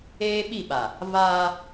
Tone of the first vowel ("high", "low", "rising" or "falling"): high